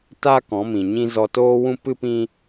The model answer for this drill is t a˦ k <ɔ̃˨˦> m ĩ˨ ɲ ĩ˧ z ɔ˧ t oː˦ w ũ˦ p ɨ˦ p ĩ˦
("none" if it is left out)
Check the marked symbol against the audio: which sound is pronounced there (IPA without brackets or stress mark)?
ɔ̃˨˦